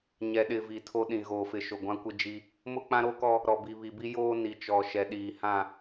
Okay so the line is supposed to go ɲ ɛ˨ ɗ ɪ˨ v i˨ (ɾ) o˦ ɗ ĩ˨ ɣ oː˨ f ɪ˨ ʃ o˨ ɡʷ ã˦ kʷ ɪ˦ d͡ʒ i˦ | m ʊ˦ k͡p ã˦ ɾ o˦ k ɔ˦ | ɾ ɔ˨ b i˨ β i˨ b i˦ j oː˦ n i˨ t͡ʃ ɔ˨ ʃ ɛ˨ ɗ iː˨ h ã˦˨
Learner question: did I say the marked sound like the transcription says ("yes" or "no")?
no